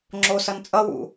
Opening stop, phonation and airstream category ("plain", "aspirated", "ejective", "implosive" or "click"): click